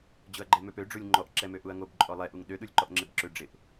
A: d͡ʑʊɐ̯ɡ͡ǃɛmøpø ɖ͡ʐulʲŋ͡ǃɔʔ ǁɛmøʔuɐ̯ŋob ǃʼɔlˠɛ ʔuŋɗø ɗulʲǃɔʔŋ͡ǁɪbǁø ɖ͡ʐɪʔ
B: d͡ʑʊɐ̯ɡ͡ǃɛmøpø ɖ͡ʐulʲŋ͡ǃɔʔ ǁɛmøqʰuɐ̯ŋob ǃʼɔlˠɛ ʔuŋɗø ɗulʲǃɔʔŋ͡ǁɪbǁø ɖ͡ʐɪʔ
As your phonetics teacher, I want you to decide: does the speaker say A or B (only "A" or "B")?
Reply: A